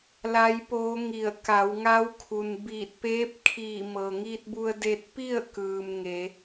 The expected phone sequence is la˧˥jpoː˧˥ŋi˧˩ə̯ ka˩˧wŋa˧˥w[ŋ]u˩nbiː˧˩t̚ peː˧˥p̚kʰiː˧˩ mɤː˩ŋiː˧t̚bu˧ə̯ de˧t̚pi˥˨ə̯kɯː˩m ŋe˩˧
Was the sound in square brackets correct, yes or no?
no